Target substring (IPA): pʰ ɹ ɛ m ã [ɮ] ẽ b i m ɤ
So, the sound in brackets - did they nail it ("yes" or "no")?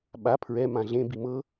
yes